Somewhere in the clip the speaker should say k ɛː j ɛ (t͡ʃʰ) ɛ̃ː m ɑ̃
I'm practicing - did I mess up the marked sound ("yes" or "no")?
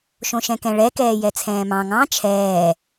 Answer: yes